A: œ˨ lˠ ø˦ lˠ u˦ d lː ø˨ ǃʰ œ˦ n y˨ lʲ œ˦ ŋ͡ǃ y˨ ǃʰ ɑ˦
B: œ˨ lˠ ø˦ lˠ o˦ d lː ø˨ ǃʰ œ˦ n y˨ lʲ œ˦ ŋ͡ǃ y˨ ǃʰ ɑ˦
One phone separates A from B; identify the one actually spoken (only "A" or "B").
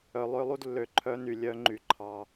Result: A